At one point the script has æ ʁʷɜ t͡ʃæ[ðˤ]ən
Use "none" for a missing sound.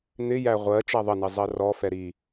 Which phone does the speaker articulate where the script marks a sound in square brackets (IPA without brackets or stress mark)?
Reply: ðˤ